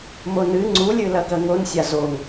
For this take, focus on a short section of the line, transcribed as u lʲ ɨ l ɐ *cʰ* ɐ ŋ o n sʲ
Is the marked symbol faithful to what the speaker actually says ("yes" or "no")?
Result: no